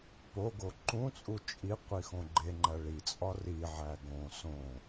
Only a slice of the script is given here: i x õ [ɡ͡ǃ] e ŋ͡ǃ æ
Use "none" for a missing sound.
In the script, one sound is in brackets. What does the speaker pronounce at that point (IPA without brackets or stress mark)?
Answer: ɡ͡ǃ